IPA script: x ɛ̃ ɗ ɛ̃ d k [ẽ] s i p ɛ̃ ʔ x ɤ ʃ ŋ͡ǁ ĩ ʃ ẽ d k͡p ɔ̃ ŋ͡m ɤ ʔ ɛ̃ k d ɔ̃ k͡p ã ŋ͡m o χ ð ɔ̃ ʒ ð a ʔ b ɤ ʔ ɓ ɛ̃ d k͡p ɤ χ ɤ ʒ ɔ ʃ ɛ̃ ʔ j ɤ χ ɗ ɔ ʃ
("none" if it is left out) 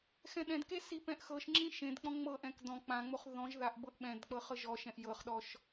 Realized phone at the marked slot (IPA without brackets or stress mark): e